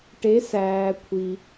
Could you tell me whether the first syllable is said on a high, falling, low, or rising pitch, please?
rising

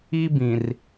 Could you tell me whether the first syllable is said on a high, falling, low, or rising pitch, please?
high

